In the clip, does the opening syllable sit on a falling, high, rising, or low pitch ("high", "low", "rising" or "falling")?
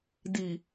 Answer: low